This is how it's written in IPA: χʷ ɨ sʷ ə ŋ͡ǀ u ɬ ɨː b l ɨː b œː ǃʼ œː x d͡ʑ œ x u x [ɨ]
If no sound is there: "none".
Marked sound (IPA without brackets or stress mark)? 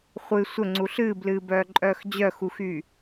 y